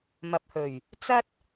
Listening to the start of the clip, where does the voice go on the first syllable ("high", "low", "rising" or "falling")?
low